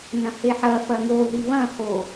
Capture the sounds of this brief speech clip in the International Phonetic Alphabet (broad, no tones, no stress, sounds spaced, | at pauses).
n ɐ̃ h e ħ ɐ f ɐ ŋ o ð i β ɐ̃ h o